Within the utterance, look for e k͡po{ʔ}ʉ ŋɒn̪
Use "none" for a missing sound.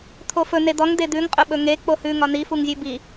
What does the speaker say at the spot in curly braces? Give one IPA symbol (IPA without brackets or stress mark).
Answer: h